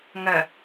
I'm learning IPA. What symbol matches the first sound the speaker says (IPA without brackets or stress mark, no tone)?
ŋ